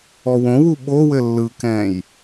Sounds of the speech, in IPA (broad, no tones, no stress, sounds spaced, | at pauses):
ɔ w õ w u ɓ o w ɘ lː ɯ k ɛ̃ j